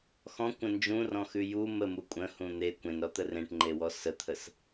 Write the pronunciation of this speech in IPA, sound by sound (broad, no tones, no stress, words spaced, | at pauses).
xɔ̃kʷə̃ nd͡ʒũrɔ̃xʉ ju məmu kʷʼə̃hũ n̪e kʷẽnɾɔt̪ə rẽʈŋ͡ǃewɔ sət̪ʰəs